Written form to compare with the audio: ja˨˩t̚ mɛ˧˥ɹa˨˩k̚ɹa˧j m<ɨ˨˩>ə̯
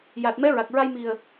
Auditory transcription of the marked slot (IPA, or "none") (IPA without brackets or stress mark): i˨˩